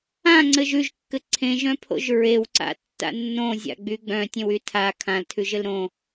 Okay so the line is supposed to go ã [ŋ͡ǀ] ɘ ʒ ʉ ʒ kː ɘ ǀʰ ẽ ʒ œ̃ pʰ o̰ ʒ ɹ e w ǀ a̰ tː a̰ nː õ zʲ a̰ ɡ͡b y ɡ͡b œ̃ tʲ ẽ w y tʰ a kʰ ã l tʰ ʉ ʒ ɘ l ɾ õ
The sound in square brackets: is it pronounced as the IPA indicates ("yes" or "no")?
yes